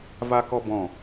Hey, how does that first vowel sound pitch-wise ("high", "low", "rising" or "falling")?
high